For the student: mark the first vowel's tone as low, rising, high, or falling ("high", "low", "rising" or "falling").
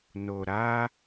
low